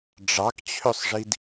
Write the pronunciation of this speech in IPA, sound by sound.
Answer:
ɖ͡ʐɑkt͡ɕʰøsˤʐid

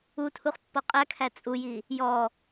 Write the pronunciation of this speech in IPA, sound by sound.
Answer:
utʰuχ pːɔqʼækʰæ t͡sʼuji | jɔ

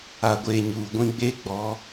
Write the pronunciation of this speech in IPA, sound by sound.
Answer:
a˨ɡʷe˨ ɲuː˨ɡʷĩ˦ ɡ͡be˦ɡ͡bɔ˨˦

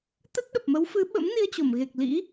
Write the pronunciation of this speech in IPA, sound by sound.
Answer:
t̪ə˦˥t̚ɗə˨˩p̚mə˨˦w fɨ˨˦ɓə̰˧˥mni˧ə̯ t͡ɕo˧˩mɣe˨˩k̚lḭ˧˥

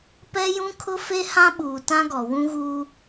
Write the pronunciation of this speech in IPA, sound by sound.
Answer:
pɛ˦jũ˦kʰʊ˦ fe˦hã˦ɓuː˨ tã˦ɡɔ˨ wũ˦ɣuː˦

